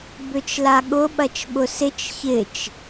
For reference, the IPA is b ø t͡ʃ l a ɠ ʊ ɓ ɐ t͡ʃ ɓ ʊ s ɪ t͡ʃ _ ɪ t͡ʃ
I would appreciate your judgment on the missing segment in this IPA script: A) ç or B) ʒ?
A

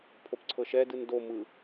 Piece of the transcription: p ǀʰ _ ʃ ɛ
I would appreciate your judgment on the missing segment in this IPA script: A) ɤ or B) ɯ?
A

